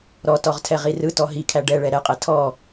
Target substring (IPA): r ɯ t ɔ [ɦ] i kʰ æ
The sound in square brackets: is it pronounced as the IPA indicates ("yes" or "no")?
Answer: yes